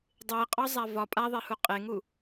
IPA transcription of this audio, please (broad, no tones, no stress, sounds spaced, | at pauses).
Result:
dˤ e qʼ ɒ zˤ a v ɒ pʼ a ðˤ e h u qʼ e ŋ u